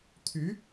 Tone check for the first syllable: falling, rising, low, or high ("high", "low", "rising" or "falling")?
rising